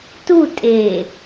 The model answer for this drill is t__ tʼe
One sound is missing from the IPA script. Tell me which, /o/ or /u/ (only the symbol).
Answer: u